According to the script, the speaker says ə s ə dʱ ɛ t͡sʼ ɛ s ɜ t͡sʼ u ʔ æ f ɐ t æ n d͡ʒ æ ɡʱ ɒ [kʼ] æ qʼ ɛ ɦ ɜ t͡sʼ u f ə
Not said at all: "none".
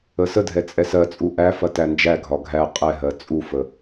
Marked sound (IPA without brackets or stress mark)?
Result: ɡʱ